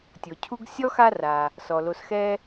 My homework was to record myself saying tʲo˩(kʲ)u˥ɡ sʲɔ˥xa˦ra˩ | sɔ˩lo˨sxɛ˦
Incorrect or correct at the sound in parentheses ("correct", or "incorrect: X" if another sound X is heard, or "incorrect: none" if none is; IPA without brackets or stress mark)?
incorrect: cʰ